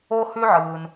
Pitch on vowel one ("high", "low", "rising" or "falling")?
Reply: high